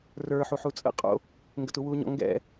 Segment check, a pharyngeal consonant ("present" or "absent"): present